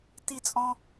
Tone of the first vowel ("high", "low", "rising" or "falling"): high